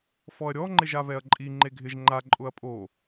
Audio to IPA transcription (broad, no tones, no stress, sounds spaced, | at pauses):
f ɔ ɐ̯ ɾʲ ɔ ŋ͡ǃ ɪ ʒ a β ɛ ɐ̯ ǃʼ i ŋ͡ǃ e ɡʱ ɪ ʒ ŋ͡ǃ a ǃʼ ʊ ɐ̯ pʼ o